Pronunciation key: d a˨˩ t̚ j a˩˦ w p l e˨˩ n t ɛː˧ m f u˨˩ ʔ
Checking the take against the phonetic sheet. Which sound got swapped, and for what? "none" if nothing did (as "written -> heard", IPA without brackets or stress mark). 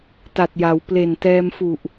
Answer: d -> t